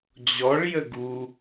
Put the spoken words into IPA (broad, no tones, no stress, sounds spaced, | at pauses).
d͡ʑ ɔ ɭ j ə ɡ u